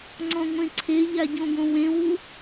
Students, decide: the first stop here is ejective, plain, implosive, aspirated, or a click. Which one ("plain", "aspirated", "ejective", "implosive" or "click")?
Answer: click